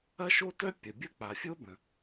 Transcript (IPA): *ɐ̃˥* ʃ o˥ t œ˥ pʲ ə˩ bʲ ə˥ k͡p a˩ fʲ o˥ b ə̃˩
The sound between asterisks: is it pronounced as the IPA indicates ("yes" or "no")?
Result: no